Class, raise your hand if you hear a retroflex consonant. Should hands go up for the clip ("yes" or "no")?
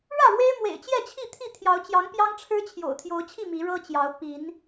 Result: yes